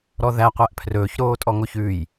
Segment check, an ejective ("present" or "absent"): present